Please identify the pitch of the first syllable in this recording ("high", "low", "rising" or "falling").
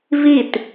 falling